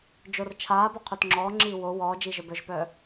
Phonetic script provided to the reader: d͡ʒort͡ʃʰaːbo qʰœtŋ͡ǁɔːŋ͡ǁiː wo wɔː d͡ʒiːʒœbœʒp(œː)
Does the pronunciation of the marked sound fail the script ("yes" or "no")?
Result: no